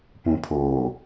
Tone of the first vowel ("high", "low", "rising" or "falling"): low